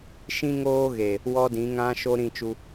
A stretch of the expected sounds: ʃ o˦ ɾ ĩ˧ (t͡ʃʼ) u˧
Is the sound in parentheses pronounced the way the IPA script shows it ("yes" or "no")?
no